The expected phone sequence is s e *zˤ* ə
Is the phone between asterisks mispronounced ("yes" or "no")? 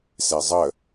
no